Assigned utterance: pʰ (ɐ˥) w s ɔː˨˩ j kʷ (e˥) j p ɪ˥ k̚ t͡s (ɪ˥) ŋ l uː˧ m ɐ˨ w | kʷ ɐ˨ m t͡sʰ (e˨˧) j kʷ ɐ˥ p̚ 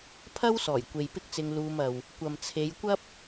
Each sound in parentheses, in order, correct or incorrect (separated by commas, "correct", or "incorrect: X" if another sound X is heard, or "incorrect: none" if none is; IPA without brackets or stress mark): correct, incorrect: e˨, incorrect: ɪ˧, correct